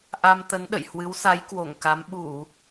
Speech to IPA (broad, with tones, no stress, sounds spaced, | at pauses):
ʔ a˧ m t̪ ə˨˦ n ɗ ə̰˧˨ j h w ɨ˨˦ w s a˨˦ j k w o˧˩ ŋ k a˨˦ m ɓ u˧˩˨